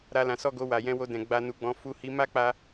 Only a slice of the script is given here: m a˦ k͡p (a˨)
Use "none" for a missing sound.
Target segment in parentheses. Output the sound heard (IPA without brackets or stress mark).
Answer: a˧